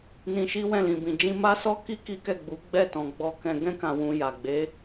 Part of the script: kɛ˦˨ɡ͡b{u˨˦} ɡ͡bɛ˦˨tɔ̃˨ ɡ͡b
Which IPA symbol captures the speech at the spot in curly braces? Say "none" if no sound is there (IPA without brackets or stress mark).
u˨˦